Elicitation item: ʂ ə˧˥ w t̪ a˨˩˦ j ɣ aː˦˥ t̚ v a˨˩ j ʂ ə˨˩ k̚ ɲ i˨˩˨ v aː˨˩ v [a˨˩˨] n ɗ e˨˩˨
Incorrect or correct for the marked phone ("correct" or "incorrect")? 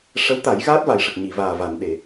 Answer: correct